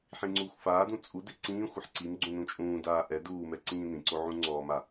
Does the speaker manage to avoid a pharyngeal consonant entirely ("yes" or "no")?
no